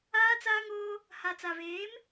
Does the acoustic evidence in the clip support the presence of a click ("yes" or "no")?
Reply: no